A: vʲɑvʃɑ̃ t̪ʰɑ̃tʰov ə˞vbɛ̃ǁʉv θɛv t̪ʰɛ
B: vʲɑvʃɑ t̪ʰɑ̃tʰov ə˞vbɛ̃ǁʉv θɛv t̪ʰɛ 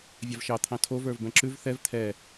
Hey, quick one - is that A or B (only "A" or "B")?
B